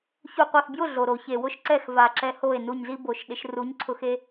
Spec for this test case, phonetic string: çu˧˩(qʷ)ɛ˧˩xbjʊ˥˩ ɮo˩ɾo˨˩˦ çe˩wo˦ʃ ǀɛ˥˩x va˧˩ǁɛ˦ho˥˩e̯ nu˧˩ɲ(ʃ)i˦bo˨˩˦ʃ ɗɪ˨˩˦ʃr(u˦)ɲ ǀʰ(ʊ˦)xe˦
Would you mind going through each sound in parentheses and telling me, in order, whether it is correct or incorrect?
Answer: correct, incorrect: z, incorrect: u˨˦, incorrect: ʊ˧˩

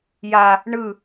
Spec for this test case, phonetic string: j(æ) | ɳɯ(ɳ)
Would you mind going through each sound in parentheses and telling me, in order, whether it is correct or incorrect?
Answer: incorrect: a, incorrect: none

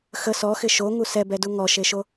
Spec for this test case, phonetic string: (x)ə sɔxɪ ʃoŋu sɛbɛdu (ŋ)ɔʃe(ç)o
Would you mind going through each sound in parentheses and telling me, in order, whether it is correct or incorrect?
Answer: correct, correct, incorrect: ʃ

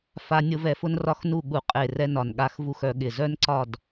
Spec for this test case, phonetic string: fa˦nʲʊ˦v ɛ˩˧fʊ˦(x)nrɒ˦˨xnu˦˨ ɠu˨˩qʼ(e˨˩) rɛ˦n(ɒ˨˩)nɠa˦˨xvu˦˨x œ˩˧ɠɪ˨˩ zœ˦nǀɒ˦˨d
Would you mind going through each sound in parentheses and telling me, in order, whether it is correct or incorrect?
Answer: incorrect: none, correct, correct

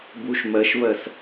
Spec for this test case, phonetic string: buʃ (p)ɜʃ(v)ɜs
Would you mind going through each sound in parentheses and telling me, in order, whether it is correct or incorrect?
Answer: incorrect: m, correct

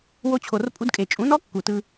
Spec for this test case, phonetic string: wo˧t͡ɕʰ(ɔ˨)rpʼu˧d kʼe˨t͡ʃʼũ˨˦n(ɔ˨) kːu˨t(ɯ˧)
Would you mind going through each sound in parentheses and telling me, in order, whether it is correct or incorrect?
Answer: incorrect: o˨, incorrect: ɔ˦, correct

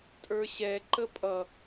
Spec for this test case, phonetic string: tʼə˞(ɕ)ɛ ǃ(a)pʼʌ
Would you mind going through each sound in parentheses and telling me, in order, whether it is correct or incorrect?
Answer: correct, incorrect: ə

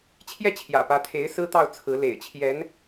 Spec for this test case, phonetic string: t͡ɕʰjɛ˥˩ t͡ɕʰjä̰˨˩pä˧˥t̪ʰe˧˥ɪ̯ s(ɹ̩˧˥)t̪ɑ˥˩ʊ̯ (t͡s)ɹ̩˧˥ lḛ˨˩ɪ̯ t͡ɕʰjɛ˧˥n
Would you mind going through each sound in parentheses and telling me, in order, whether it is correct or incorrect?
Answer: incorrect: ɹ̩˥, incorrect: t͡sʰ

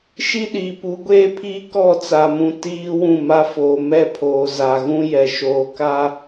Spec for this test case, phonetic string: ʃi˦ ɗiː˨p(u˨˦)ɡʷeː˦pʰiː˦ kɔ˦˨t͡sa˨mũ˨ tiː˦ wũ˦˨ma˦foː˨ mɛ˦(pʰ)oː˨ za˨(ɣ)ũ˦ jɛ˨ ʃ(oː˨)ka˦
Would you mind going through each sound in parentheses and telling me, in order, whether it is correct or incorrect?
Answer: correct, correct, correct, correct

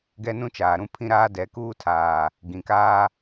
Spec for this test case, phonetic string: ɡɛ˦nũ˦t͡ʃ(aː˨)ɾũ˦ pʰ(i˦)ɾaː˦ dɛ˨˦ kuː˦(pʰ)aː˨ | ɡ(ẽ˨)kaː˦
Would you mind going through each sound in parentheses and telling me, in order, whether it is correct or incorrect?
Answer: correct, incorrect: ĩ˦, incorrect: tʰ, incorrect: ĩ˨

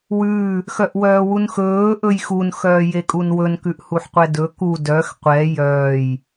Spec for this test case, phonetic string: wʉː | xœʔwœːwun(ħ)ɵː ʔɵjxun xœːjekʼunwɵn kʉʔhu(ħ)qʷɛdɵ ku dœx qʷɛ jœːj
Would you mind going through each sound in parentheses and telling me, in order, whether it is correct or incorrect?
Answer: incorrect: x, correct

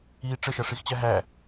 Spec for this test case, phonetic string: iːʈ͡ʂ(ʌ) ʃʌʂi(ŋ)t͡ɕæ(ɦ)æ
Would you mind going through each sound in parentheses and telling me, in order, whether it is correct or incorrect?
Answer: incorrect: ə, incorrect: x, correct

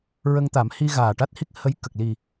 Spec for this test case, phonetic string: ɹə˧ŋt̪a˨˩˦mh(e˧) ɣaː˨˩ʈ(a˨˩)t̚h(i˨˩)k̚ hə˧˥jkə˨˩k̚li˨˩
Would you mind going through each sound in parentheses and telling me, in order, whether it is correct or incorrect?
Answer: incorrect: i˧, incorrect: a˦˥, incorrect: i˦˥

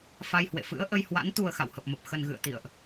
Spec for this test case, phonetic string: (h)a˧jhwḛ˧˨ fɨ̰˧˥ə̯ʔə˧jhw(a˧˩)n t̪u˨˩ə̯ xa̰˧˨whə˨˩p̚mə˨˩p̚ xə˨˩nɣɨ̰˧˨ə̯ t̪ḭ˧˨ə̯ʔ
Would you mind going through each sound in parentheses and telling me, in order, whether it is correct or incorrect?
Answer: incorrect: f, incorrect: a̰˧˥

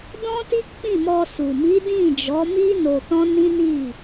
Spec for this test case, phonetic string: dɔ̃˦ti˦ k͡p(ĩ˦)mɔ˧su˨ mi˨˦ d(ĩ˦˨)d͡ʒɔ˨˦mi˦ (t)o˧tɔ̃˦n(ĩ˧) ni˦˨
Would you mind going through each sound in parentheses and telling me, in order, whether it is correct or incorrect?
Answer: incorrect: ĩ˦˨, correct, incorrect: n, incorrect: ĩ˦

